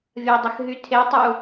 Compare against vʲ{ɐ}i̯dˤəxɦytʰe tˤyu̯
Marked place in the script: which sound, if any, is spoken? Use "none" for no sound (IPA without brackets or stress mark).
ɐ